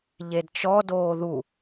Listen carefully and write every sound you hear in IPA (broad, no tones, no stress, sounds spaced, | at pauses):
ʎ e d t͡ʃ ɔ d oː ð u